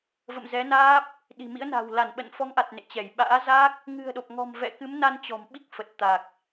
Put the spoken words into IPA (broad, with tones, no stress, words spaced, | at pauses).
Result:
və̰˧˨mzɛ˨˦naː˦˥p̚ | ɗi̤˨˩mḭ˧˥ə̯na̤˨˩w la˧˩nɓə̰˧˨nfɔ˨˦ŋʔa˨˩t̚ nḛ˧˨t͡ɕɛ˧˩j ɓa̰ː˧˥za˦˥k̚ | ŋɨ̤˨˩ə̯ɗo˨˩p̚ŋɔ̤˨˩m vɛ̰˧˨kɨ˨˦mna˧n t͡ɕɔ̤˨˩mɓi˦˥k̚fə˨˩t̚ t̪a˨˩k̚